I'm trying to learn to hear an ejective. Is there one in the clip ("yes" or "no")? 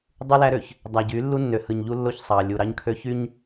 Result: no